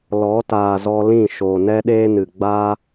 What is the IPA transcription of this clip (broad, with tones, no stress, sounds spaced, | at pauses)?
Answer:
l ɔ˨˦ t aː˨ z ɔ˧ l ĩ˦˨ ʃ o˨ n ɛ˦ ɗ eː˦ n ɨ˨ ɡ͡b a˦